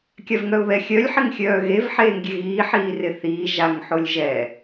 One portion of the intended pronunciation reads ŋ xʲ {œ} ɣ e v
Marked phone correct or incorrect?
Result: incorrect